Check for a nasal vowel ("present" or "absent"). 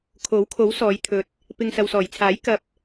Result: absent